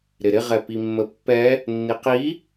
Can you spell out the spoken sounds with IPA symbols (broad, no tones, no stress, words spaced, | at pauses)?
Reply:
ɾɪɾɪʁɛ pimːəpːɛ | nːiqi